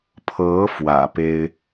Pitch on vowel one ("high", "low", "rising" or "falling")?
rising